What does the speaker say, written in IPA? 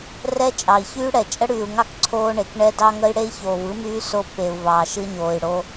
rɛ˦ t͡ʃʼɑ˨i̯çyː˦ɽɛ˨ t͡ʃʼə˦ɽyː˨u̯ŋɑ˦k ǀʰoː˦ɳe˨k ɳɛ˦dɑ˦ŋə˦i̯ ɽe˦i̯çoː˨vɯ˦myː˦ so˦pːe˨u̯ vɑː˨ʃɯ˦ɲoː˨i̯ɽo˦

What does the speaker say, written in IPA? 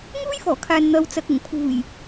ŋuː˥jfɔː˨˩kʰaː˨n n̪ɐ˨w t͡sɐ˨k̚ʊ˨˩ŋ pʰuː˨˩j

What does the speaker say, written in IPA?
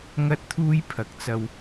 ŋɐ˥t̚t̪ʰuː˥j pʰɐ˨k̚t͡sɐ˧w

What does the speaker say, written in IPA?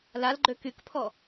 lalɡ͡ǃø kykpʰɔ

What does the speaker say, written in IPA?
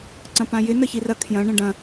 ǀɐ̃pãjɪ nəçirɐ kʰjɐ̃ ɳə̃ɖɐ̃

